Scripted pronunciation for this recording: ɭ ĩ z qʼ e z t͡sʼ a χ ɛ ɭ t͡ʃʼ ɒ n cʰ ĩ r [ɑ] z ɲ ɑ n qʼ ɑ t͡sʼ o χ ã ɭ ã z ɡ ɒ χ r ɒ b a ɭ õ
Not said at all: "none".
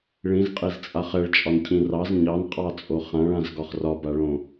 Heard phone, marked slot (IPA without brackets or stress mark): ɑ